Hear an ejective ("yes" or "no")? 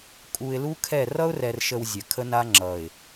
yes